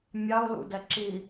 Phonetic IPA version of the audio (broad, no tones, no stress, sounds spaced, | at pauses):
mʲ ɑ ʊ̯ l ṵ d ɛ ǁ i